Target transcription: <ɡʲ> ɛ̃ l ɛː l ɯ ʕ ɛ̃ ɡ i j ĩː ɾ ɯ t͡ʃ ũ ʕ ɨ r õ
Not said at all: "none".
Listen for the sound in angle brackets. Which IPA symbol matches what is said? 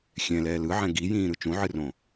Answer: xʲ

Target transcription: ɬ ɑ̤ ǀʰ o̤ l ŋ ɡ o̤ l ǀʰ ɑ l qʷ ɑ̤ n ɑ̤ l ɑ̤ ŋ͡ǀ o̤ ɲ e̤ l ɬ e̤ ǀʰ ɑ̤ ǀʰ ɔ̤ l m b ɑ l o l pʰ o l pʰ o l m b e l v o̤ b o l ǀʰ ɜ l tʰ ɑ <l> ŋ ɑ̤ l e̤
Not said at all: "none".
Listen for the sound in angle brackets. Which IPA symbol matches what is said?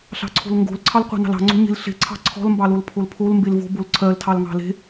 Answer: l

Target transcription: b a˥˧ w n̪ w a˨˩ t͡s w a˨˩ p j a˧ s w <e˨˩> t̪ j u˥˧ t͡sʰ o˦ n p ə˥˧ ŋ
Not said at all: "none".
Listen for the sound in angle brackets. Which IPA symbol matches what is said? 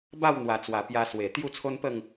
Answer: e˨˩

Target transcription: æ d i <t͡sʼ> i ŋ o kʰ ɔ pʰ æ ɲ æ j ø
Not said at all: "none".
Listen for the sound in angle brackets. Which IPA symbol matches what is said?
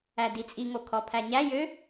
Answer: t͡sʼ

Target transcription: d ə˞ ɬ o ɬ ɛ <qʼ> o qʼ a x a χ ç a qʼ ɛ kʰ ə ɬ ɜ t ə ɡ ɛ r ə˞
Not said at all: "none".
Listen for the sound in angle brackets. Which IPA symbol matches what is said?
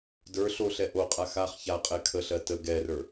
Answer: ʔ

